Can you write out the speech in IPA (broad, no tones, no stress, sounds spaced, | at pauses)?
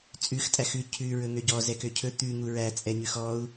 t͡sʼ ʉ x tʼ æ x ʉ cʰ ʉ ɹ ɵ ŋ ø ɟ ɔ z ɛ k ø cʰ ɵ t̪ ʉ ŋ u ɹ æ t͡sʼ ɛ ɲ ʉ x ɔ u̯